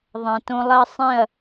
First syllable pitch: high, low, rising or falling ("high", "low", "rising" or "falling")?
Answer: low